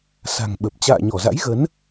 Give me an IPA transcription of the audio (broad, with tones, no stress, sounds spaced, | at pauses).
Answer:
s a̤˨˩ ŋ ɓ ə˨˩ p̚ t͡ɕ a̰ː˧˨ ɲ ɔ˧˩ z a̰˧˥ j ɣ ə˨˦ n